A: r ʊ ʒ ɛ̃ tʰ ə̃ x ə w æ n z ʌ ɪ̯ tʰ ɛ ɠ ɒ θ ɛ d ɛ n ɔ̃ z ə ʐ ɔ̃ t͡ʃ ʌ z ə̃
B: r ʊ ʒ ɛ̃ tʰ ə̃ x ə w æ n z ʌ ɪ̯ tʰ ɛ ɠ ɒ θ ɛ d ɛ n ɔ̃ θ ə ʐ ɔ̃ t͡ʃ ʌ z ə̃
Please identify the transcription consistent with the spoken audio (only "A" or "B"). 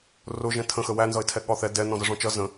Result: A